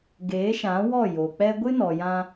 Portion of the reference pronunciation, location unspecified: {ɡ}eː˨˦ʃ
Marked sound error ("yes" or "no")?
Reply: no